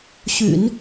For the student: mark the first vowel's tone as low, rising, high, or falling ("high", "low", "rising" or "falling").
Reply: low